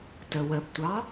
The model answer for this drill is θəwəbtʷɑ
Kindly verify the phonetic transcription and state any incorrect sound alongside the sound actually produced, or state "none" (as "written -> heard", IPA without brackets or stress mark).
θ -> t